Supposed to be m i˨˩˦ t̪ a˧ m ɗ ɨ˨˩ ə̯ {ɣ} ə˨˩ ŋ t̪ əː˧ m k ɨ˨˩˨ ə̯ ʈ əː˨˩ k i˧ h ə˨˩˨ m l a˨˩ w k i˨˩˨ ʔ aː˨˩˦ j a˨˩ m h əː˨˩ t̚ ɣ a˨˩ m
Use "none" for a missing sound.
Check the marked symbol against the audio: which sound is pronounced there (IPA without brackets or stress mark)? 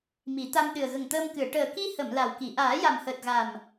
ɣ